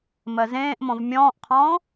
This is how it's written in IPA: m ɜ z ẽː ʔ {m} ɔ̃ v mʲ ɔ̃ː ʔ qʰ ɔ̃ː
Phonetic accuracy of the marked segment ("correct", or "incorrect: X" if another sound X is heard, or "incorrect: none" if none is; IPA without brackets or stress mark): correct